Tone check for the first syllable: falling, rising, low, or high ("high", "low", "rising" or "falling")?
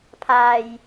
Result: low